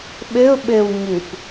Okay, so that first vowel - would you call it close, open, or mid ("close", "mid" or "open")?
mid